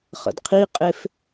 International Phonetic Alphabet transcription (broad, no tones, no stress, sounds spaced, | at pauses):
χ ə̰ d qʰ i qʼ e f